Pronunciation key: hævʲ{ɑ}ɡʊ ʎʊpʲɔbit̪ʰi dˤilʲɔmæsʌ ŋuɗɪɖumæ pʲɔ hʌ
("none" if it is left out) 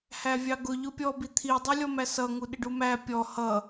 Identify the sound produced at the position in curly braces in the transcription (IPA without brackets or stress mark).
ɑ